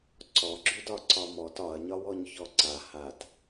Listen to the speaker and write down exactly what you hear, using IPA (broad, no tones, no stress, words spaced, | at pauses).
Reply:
ǀɔɡ͡ǁydɒ ǀɒmɔt ɒɐ̯ɲɒwɔɲ çɔǀa hat